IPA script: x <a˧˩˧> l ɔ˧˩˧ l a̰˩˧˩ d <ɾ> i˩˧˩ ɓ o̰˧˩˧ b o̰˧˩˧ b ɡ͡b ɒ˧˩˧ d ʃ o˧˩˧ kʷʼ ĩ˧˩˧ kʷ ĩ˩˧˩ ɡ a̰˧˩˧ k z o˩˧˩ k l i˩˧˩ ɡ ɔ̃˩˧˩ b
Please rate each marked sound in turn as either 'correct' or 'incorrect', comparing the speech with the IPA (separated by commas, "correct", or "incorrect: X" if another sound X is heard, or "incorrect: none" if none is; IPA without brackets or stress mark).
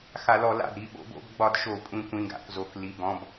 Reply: correct, correct